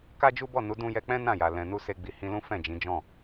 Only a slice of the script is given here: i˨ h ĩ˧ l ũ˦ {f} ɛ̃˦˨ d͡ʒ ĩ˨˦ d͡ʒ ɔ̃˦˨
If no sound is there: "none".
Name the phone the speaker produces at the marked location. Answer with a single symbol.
f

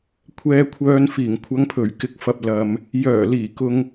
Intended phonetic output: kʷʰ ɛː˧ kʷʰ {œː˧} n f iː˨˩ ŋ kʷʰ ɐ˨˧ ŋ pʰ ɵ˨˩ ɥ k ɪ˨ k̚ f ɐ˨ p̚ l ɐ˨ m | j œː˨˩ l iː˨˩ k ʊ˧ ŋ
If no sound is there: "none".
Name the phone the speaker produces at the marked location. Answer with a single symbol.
œː˧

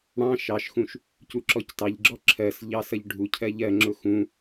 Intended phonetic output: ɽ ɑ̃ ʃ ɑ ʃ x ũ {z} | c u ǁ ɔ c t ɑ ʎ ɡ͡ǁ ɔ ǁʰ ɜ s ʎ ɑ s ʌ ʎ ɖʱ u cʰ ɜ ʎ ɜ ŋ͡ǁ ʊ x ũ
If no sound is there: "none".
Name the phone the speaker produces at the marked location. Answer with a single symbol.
ʃ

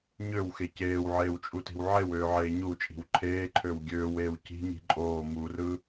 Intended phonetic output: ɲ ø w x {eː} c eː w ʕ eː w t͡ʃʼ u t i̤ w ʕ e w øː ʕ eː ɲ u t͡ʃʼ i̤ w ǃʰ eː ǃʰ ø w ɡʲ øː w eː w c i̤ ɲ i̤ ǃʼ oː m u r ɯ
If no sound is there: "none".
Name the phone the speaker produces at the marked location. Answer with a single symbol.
e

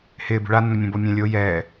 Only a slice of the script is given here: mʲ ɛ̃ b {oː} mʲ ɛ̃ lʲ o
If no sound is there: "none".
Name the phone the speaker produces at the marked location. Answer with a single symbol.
o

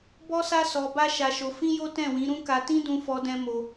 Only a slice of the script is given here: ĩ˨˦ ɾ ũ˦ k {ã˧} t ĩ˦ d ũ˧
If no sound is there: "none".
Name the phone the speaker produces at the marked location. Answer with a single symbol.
a˧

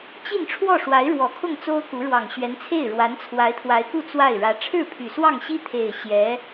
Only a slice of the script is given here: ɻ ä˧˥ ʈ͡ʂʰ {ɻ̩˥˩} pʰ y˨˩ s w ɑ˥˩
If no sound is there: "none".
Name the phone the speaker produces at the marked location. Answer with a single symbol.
ɻ̩˥˩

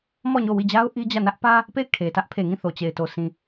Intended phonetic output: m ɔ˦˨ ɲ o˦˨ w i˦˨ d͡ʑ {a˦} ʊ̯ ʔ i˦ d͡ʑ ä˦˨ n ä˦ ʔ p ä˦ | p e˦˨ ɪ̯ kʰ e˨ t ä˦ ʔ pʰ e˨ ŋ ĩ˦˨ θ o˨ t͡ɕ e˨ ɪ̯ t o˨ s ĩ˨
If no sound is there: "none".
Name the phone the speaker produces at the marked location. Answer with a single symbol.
a˦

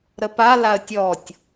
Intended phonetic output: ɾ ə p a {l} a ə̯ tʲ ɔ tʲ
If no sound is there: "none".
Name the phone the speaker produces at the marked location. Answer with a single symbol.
l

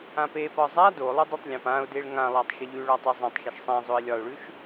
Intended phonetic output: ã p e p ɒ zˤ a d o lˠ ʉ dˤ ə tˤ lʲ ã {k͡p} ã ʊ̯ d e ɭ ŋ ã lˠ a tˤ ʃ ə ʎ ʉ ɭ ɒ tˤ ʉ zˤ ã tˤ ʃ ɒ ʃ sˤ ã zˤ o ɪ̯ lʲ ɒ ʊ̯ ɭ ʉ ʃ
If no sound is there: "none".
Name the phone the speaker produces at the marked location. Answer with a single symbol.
p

